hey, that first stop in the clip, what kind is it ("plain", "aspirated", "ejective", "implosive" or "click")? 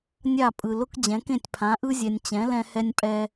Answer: ejective